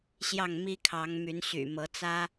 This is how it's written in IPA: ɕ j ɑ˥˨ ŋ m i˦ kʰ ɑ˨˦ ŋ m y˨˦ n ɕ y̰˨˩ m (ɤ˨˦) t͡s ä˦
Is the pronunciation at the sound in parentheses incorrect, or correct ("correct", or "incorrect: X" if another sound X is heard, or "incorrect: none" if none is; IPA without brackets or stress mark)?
correct